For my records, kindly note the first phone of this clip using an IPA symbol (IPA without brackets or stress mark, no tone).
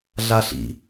ɮ